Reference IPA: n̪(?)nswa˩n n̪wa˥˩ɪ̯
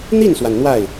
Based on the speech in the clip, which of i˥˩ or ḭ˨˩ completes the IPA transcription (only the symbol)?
i˥˩